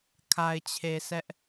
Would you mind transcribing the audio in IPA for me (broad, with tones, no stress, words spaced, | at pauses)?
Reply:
kʰa˨ɪ̯t͡ɕʰe˨ sɛ˦ʔ